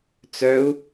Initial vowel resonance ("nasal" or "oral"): oral